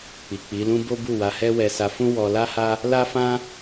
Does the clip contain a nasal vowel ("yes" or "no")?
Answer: yes